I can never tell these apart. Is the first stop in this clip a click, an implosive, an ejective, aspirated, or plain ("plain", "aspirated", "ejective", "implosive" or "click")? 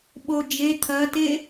implosive